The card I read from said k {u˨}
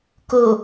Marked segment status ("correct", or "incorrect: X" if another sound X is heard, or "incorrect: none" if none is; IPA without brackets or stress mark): incorrect: o˨